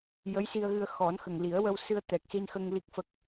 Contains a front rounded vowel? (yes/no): no